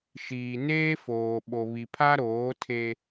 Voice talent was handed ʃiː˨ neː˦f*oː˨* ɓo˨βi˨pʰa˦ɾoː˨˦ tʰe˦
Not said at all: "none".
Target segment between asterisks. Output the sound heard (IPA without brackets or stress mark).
oː˨